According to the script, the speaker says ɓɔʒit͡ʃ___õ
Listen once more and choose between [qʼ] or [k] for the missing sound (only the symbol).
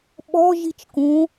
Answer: k